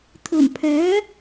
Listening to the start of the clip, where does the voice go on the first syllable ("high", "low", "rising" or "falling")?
low